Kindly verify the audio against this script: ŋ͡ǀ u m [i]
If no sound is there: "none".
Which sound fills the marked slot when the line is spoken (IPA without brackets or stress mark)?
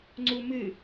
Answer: ɨ